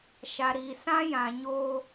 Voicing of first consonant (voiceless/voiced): voiceless